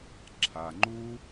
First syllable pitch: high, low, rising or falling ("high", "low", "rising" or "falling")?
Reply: low